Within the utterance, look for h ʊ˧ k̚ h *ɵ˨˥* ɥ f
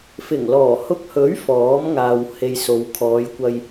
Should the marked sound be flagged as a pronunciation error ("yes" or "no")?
no